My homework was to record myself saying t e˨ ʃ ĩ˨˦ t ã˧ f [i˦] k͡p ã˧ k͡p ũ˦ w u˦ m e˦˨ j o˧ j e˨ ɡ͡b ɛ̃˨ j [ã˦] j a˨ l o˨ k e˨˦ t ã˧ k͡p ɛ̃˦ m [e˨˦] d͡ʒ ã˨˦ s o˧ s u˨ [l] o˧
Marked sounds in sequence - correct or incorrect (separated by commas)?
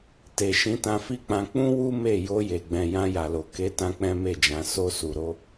correct, incorrect, incorrect, incorrect